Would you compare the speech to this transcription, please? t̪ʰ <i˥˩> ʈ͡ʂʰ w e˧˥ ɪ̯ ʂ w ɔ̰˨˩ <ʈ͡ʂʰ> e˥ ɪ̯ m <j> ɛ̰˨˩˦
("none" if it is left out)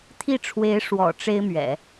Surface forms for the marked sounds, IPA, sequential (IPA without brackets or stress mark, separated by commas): i˥˩, ʈ͡ʂ, ɥ